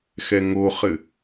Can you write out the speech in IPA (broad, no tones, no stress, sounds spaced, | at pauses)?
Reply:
x ɛ ŋ o χ ɘ